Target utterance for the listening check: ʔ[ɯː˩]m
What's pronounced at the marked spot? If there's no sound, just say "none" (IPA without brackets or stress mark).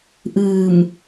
ɯː˧˩